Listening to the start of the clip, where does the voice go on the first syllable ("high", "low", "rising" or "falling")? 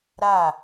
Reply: falling